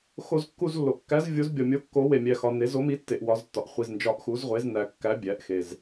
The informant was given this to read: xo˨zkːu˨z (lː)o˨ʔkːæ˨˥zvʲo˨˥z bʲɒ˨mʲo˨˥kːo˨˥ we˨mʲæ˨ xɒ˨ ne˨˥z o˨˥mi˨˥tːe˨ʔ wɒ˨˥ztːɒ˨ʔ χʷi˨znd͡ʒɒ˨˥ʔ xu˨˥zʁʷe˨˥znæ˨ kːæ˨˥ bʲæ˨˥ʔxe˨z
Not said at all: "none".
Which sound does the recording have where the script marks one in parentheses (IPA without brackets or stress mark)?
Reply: lː